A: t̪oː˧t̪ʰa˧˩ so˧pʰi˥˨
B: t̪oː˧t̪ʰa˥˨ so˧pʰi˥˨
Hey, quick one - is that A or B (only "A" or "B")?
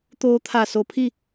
A